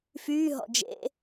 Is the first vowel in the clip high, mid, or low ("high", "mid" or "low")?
high